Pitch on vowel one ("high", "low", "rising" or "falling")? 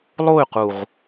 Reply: falling